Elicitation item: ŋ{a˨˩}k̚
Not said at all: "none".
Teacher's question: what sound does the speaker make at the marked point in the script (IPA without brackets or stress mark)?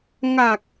a˨˩